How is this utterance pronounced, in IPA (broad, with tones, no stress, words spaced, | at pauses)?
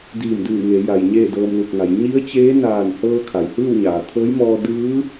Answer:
diː˧˩mdɯː˧˩ ŋe˩˧ja˩j ɲeː˥˨dɤː˧mlu˧˩k̚ŋa˩˧j ɲi˧˥ə̯t͡ɕeː˧˥naː˧˩nhɤː˧ kʰa˩jhɯː˥˨wɲaː˩ t̪ʰɤː˧˥jmɔː˧ dɯː˧˥